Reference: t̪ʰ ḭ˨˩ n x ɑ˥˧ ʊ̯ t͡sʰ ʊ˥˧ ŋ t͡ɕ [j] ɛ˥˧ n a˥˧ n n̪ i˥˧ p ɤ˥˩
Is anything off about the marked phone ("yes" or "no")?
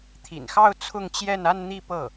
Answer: no